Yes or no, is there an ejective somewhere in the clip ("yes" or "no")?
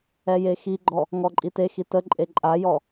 yes